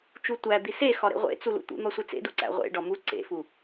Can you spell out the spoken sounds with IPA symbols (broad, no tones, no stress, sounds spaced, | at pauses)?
t͡ʃ u tʷ æ d̪ i s e x ɒ ɾ ḛ ʁʷ ḛ t͡s u l ṵ t̪ ṵ n̪ ɒ sʷ e t͡s ḛ d u ǀ æ̰ ʁʷ ḛ ɖ ɒ m u ǀ ḛ f u